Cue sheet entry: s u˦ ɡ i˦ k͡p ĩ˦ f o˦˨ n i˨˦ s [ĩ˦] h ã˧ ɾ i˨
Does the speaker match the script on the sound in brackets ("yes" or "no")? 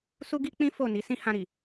yes